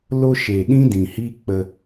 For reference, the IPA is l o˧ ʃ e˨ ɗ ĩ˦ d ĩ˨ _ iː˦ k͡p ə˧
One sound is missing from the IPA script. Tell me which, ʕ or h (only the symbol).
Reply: h